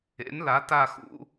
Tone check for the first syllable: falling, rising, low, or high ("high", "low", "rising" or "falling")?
rising